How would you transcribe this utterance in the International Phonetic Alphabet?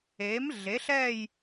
e˨˥ m ɮ e˨˥ ɬ ɛ˥˧ j

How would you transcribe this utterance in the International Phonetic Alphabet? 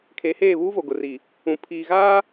kʰ e˨˦ h eː˦˨ β uː˦ v o˨ ɡ ʊ˨ r i˨ | ũ˨ pʰ iː˨ ɣ aː˦

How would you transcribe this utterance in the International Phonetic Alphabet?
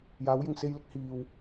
j aː˨˥ w j ɪ˧ ŋ s e˧ j l ɪ˥ k̚ h iː˧ w

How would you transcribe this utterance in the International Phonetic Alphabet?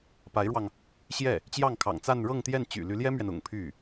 p a˧˥ ɪ̯ ɻ w ɑ˧ ŋ | ɕ j ɛ˥˩ | t͡ɕ j ɑ˥˩ ŋ kʰ ɑ̰˨˩ ŋ t͡s a˥˧ n ɻ ɤ˥˧ ŋ t̪ j ɛ˥˩ n t͡ɕ y̰˨˩ l y˧˥ l j ɛ˥ m ɥ ɛ˨ n ʊ̰˨˩ ŋ pʰ y˥˩

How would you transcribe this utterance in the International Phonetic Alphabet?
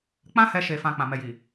k͡p ã˦ h ɛ˧ ʃ e˨ f ã˨ k͡p ã˨ m ɛ˨ j i˨

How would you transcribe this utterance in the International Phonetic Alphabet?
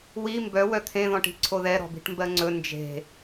w i m b œ w œ t̪ʰ ẽ ð ɔ̃ ʈ i̤ ǀʰ o ð ɛ ɾ ɔ̤ b i̤ ʈ m b ɜ ŋ͡ǀ ɵ n d͡ʒ e̤

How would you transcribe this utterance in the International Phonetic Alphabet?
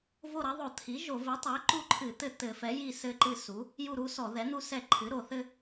v o˦˨ ɾ ɐ˩˥ ðˤ o˧˩˧ t̪ʰ i˩˥ ʒ o˧˩˧ v i˩˥ tˤ e˩˥ ǃ u˦˨ ǃʰ ɨ˧˩˧ t̪ ɘ˦˨ t̪ ɘ˧˩˧ f ɛ˩˥ j i˦˨ s ɘ˦ ǃ ɨ˦˨ s u˩˥ | j u˦˨ ɾ u˦ s ɔ˧˩˧ ð ɛ˩˥ n̪ u˦ s ɛ˦˨ ǃʰ ɨ˩˥ ɾ o˧˩˧ θ ɘ˦

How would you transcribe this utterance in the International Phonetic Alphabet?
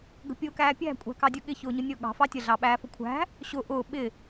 ɡ ə̤ pʲ ʊː k æː pʲ æ̤ kʷʼ æ̤ k ɑ dʲ ʊ ɠ ɪ ç ʊː ɲ ʊ nʲ ʊː ɠ ɑ̤ f ɑ tʲ ə ɮ ɑ ɓ æː f ʊ kʷʰ æ̤ | ɕ ʊ ʔ ʊː ɓ ɪ

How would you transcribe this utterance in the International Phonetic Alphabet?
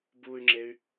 b uː y̯ ŋ͡ǁ e y̯

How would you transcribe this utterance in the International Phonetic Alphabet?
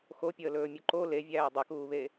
x o pʲ əː l ɵː mʲ u ǃ o l e vʲ æː dˤ ɵ k uː β e

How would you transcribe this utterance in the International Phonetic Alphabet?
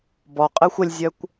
b ɔ qʼ ɘ xʷ ə lʲ zʲ œ kʷ

